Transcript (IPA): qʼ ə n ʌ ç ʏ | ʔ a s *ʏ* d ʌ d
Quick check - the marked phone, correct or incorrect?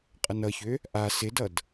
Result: incorrect